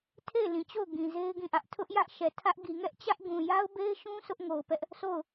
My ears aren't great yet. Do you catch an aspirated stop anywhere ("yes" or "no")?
yes